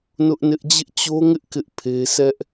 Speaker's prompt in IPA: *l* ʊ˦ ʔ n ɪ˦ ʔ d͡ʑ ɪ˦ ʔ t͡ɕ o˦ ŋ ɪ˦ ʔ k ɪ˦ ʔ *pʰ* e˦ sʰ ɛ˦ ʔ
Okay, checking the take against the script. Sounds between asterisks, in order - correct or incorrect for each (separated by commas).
incorrect, correct